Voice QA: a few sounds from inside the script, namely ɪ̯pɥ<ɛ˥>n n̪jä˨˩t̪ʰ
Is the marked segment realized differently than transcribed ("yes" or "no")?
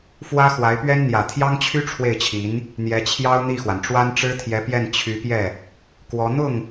no